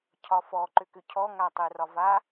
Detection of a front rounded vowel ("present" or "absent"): present